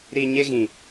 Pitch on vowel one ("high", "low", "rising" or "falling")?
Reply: low